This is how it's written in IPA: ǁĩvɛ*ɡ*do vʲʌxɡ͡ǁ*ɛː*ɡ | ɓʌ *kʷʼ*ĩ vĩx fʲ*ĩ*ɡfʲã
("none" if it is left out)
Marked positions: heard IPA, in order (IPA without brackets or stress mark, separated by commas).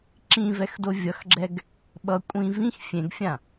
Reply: x, ɛ, kʷʼ, ẽ